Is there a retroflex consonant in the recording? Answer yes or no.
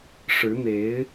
yes